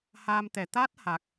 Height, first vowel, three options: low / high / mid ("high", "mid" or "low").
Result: low